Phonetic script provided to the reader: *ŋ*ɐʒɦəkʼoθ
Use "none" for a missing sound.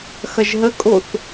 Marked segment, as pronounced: x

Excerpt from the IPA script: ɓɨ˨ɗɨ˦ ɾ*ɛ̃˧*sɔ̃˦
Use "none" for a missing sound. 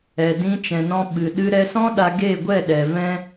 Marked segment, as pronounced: ɛ˧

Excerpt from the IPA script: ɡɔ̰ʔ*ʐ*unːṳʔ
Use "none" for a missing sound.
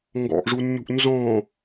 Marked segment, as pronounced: ʐ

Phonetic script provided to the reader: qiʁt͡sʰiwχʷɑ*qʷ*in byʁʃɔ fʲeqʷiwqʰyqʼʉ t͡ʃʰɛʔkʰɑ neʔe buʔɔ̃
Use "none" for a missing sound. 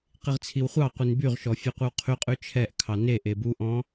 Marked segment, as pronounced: qʷ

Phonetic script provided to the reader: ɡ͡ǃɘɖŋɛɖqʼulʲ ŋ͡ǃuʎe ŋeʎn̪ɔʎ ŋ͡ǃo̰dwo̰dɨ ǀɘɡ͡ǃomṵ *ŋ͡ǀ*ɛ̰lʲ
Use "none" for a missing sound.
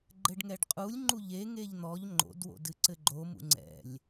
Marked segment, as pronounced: ŋ͡ǀ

